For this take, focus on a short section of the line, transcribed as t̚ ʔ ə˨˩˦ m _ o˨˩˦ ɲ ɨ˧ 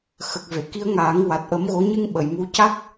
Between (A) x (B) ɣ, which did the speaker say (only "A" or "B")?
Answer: B